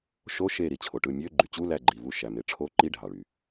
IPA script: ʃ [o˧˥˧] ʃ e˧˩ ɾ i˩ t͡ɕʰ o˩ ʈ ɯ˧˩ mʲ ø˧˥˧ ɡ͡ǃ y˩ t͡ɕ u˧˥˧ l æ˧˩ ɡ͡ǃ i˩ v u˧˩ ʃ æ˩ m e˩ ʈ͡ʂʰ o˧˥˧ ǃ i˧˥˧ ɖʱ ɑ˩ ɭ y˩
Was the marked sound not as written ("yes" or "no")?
no